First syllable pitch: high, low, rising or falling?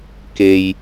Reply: low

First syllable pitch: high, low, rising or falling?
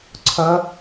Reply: rising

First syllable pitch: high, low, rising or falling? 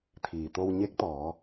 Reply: low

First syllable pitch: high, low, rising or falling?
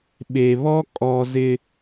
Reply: low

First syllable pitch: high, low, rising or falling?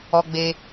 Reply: high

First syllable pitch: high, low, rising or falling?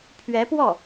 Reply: rising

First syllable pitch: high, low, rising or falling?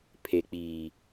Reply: low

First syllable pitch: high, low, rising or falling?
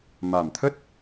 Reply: low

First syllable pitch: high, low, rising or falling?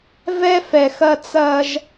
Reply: high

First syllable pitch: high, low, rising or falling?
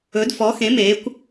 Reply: rising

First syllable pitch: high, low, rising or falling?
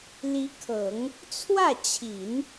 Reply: rising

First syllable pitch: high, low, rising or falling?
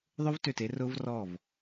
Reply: high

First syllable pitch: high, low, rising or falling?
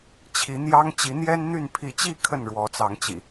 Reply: rising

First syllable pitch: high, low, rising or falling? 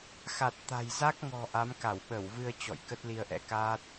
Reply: low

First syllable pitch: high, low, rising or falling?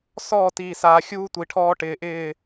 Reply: falling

